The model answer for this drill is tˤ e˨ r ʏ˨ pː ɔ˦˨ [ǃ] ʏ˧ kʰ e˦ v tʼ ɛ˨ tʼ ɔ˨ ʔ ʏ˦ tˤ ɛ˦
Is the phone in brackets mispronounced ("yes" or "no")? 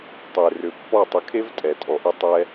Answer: yes